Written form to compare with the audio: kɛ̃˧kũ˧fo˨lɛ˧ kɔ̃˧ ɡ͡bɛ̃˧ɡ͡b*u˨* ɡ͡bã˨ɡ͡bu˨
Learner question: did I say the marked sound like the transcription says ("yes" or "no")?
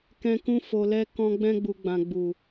yes